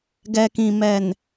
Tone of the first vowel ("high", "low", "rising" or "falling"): low